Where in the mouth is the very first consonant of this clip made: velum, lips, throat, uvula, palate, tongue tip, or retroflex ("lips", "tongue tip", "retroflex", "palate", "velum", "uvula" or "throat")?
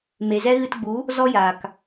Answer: lips